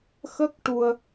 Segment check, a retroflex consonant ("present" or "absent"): present